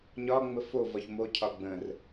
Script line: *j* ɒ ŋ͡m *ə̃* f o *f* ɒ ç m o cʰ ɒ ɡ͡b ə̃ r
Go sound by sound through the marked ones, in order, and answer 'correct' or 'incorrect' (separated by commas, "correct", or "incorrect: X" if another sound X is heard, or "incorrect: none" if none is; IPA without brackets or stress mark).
incorrect: ɲ, incorrect: ə, incorrect: v